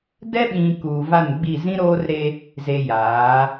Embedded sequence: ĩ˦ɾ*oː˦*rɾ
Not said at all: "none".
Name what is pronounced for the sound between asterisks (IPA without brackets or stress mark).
oː˦